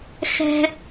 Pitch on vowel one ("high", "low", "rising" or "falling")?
high